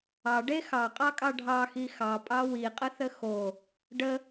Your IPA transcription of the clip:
ɑ ɖ e x ɑ qʼ ɑ kʼ ɑ ɖʱ ɑ x i x ɑ pʼ ɑ w i qʼ ə θ ə x o | ɖ ə

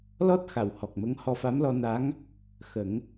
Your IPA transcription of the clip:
l ɔ˦˥ t̚ x a˨˩˨ w h ɔ˨˩ k̚ m ə˧˥ ŋ h ɔ˧ f a˧˥ m l ɔ˧ n a˧˥ ŋ | x ə˨˩˦ ŋ

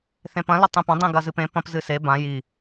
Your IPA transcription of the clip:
θ ẽ p ɐ̃ l ɵ tˤ ẽ p ɐ̃ dˤ ĩ ɡ ɐ z ɨ p ẽ p ɐ̃ p z ɨ s e b ã j i

